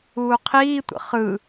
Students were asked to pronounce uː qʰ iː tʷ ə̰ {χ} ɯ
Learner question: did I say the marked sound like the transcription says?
yes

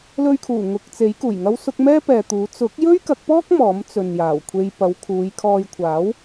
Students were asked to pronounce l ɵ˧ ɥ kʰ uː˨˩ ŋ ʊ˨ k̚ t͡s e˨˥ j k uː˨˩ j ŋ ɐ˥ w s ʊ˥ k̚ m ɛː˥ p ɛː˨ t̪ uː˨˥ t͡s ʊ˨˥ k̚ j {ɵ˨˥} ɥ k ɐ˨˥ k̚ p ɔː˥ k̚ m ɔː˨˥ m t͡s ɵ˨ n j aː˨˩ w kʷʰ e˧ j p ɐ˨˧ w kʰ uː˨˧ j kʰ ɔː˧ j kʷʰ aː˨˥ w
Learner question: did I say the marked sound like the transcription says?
no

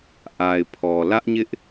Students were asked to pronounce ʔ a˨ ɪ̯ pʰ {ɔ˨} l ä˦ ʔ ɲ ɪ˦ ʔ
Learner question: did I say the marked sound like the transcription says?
yes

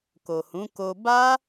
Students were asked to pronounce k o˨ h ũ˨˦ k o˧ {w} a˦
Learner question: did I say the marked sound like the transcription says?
no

